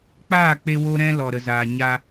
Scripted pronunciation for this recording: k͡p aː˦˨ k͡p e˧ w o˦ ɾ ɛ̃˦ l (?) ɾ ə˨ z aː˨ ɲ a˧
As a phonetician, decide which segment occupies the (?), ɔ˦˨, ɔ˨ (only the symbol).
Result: ɔ˨